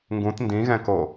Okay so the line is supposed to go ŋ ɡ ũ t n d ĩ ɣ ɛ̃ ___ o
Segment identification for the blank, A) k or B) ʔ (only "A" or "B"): A